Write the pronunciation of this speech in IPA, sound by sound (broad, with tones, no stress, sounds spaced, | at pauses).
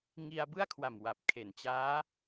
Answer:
ŋ i˧ a̯ b ɯ˥˩ a̯ kʰ w a˨˩ m w a˨˩ p̚ kʰ e˨˩ n t͡ɕ aː˦˥